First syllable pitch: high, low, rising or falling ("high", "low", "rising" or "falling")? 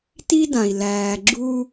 high